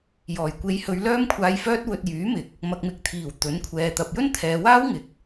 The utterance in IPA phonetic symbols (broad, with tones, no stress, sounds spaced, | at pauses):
j ɔː˨˩ j kʷ e˨˧ j h ɵ˨˧ ɥ l œː˧ m kʷʰ aː˨ j f œː˧ t̚ w ɵ˧ t̚ j yː˨˥ m ɪ˨ k̚ | m ɐ˨ k̚ m ɪ˨ k̚ t̪ʰ iː˨˩ w t̪ ɵ˨˥ n kʷʰ ɛː˨ t̪ ɐ˨ p̚ j ɵ˥ n t̪ʰ ɛː˨˧ w aː˥ w ŋ ɪ˨ k̚